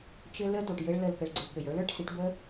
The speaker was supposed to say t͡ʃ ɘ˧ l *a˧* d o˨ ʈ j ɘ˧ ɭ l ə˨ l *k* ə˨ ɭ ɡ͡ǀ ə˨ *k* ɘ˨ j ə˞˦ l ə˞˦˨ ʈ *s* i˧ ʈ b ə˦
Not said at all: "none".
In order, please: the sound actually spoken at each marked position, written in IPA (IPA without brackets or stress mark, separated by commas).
ə˧, k, k, s